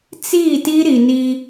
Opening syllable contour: falling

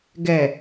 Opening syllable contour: low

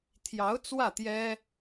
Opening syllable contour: rising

